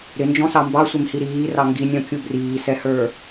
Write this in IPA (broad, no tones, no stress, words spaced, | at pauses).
ɾɪnd͡ʒɔ̃sɑ mbɑsʷɪmhi ɾiːrɑ ŋɡinʲɔ̃kʲu briːsɛhə˞